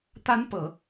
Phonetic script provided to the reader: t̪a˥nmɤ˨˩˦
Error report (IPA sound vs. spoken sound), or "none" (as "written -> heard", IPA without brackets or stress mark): m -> p